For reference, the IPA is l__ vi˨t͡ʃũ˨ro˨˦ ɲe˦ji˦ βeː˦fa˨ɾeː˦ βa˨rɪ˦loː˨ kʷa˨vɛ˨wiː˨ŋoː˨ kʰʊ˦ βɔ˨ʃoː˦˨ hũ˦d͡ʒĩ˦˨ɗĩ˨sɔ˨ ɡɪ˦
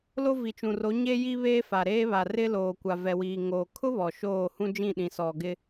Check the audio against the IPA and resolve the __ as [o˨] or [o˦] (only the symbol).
o˦